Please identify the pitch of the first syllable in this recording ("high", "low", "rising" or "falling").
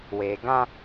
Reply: low